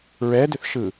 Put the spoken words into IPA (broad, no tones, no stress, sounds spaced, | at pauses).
ɹ ɛ d ʏ θ ʃ ɯ